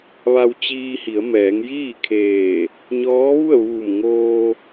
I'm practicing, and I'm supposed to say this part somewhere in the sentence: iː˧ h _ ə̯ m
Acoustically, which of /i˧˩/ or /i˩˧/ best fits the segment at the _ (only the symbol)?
i˩˧